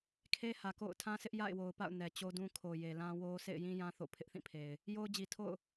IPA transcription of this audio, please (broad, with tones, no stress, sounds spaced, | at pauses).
kʰ e˦ h ä˨ k o̰˦˨ ʊ̯ tʰ ã˦ sʰ ɪ˦ ʔ j a̰˦˨ ɪ̯ w o˨ ʊ̯ p a̰˦˨ ʊ̯ n ɛ˨ t͡ɕ o˦ d ũ˦ kʰ o˨ j e˨ l ã˦ w o˦ s ḛ˦˨ ɪ̯ j ĩ˦ j ã˦ θ o̰˦˨ pʰ ɪ˦ ʔ θ ĩ˦˨ pʰ e˨ ɪ̯ | j o˦ ʊ̯ d͡ʑ i˨ tʰ o̰˦˨ ʊ̯